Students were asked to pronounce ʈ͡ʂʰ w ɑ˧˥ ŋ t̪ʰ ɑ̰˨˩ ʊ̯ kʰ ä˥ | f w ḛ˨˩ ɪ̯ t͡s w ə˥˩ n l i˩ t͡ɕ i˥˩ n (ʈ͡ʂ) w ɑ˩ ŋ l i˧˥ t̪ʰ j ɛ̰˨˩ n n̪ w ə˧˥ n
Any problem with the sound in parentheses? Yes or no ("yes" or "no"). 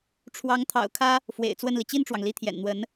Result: no